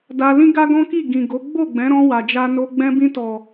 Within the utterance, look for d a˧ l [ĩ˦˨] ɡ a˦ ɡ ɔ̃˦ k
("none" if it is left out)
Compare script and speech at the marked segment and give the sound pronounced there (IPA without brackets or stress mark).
ĩ˦